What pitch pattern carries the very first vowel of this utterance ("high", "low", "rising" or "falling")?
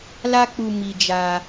high